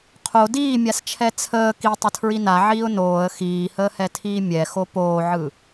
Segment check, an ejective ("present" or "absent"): absent